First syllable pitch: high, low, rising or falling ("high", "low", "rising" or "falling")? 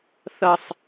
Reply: low